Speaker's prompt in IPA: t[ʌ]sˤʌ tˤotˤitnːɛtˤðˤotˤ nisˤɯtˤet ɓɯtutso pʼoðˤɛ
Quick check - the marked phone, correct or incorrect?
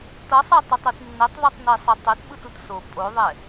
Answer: correct